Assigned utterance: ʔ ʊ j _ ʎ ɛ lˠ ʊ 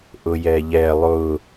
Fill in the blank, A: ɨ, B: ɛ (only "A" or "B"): B